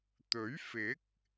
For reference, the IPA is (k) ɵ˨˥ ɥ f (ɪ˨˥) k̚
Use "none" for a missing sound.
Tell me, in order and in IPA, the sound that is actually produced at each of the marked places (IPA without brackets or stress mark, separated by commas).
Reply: t̪, ɪ˨˥